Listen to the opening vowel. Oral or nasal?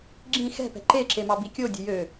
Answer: nasal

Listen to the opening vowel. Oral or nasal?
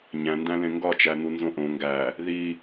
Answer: nasal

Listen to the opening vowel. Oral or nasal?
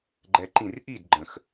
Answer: oral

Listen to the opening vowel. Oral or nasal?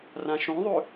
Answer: nasal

